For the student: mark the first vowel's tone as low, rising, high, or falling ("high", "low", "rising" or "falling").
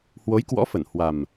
rising